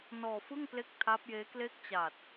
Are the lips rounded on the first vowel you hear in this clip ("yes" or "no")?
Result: yes